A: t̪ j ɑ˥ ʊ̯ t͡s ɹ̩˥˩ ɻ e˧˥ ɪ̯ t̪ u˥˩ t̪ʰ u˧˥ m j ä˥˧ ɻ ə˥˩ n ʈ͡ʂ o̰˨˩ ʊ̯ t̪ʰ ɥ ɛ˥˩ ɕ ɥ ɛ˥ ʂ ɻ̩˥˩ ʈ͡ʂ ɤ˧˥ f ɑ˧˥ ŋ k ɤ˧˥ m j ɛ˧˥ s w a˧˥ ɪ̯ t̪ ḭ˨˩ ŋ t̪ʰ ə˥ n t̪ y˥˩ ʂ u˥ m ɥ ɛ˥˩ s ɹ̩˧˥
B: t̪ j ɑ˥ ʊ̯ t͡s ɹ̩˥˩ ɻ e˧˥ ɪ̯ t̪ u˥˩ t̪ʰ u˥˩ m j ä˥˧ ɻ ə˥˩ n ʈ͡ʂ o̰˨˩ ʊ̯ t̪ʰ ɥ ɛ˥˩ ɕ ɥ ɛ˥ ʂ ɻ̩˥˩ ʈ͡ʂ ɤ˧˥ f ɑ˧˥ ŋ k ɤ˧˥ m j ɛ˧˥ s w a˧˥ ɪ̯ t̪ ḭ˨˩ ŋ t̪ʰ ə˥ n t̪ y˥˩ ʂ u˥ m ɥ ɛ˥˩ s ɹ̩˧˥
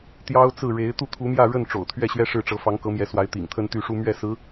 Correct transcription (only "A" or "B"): A